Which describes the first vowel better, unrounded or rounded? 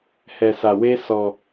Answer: unrounded